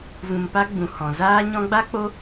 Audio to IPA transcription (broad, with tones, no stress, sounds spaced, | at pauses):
v ũ˧ m p a˦ ɡ͡b ũ˨ h ɔ̃˨ z aː˦ ɲ ɔ̃˦ ɡ͡b a˦ k͡p o˦